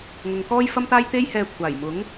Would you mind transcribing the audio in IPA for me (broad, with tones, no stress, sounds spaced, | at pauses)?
ŋ ʊ˨ ŋ k ɔː˥ j f ɐ˥ m t̪ aː˥ j t̪ e˥ j h ɛː˧ kʷʰ aː˨˩ j m ʊ˨˥ ŋ